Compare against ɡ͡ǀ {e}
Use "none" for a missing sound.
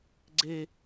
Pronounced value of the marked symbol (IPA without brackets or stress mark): e